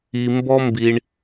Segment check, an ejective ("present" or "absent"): absent